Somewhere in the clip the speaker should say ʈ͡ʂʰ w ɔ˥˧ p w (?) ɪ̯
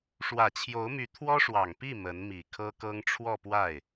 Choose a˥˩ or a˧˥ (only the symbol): a˥˩